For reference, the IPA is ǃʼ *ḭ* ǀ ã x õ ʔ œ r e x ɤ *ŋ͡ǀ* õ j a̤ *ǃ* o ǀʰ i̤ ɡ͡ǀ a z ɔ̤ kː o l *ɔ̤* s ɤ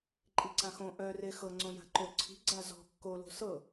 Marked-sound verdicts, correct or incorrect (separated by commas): incorrect, correct, correct, incorrect